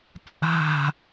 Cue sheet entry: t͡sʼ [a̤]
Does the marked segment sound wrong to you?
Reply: no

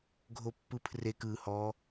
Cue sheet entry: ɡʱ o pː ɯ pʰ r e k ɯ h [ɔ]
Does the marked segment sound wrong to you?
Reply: no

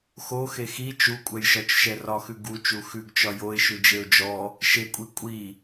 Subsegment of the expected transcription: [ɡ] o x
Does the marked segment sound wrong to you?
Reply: yes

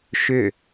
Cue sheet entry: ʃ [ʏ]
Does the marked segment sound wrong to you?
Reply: no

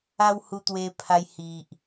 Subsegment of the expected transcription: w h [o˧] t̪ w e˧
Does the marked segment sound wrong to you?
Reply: yes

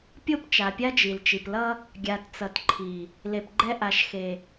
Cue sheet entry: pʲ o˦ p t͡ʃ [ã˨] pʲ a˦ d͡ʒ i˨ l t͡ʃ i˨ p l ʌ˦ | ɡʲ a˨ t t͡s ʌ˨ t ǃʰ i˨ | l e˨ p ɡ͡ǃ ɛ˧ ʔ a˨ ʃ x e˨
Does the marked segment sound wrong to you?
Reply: yes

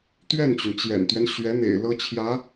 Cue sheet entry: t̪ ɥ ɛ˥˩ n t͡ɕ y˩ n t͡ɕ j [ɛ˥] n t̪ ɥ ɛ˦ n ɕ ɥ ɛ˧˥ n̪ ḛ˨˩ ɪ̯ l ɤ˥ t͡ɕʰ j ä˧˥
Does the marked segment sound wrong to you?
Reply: yes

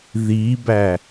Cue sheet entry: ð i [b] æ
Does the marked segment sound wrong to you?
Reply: no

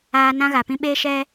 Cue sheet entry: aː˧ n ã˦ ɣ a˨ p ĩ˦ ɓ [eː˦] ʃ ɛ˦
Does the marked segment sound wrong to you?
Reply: no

